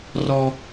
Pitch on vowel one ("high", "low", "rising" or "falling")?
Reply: low